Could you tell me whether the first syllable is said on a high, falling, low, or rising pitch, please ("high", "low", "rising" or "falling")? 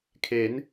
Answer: rising